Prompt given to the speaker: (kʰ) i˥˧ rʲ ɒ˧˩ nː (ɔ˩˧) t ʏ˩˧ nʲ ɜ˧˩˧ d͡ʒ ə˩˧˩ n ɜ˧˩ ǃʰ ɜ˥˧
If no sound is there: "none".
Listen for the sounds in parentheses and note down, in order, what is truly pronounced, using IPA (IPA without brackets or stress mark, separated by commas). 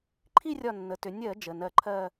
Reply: ǃʰ, ə˩˧